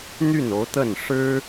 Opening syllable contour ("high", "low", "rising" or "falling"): falling